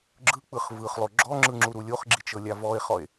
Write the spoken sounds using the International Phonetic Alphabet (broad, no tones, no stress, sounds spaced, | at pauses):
ɡ͡ǁ ɯ k͡p ɯ χ v ɯ χ lˠ o ɡ͡ǁ ɔ ŋ͡ǁ ɯ ŋ͡ǁ u ɾ u lʲ o χ ɡ͡ǁ i t͡ʃ ɤ lʲ a v ɔ e̯ χ ɔ e̯